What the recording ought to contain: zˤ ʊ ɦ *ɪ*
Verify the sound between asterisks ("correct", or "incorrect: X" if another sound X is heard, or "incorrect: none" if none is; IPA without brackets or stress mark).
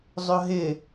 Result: correct